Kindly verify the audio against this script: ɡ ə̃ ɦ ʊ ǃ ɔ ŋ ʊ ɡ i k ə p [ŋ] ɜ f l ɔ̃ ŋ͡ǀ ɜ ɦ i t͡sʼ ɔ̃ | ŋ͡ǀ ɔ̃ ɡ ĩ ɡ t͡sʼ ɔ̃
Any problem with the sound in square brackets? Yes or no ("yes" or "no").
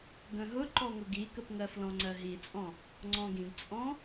no